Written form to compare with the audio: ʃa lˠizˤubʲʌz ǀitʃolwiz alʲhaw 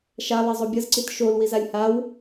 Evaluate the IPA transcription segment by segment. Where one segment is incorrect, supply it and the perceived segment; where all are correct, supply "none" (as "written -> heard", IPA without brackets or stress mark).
none